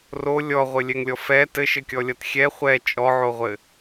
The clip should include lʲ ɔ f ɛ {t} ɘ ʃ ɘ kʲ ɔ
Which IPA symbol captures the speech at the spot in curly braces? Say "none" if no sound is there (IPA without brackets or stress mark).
t